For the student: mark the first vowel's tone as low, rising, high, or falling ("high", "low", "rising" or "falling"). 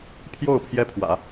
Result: falling